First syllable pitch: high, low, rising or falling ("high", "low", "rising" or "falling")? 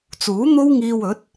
rising